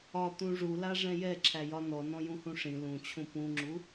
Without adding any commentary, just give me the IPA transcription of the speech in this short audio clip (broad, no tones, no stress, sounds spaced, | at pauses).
ɒ t̪ ũ ʐ u l a ʐ ɛ̃ j ɛ ǁʰ æ j ɒ n ɔ n ɔ̃ j ũ h ũ ʂ ĩ l ũ t͡ɕʰ ũ p ũ ŋ͡ǁ u